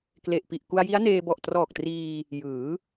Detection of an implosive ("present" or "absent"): absent